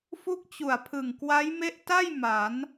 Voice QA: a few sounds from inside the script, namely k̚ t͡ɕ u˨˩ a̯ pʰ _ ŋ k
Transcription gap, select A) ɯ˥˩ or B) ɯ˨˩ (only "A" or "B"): B